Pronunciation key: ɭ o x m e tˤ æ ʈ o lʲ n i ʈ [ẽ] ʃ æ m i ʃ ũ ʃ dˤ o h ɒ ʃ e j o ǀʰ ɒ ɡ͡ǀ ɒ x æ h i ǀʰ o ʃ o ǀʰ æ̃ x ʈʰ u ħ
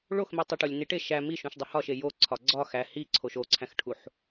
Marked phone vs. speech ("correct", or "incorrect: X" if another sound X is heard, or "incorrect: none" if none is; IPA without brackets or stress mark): incorrect: e